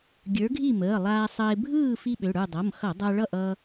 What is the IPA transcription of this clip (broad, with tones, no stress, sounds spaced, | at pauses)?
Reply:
ɡʲ ə˞˨˥ ɡʱ i˥˨ m əː˩˧˩ lˠ aː˧ sˤ əː˧ ɪ̯ bʱ ɯː˥˨ f i˥ ɓ ø˩˧˩ ɽ ə˞˥˨ dˤ ʌ˩˧˩ m x ʌ˧˩˧ dˤ a˧ ɭ ʌ˥˨ ʔ ʌ˥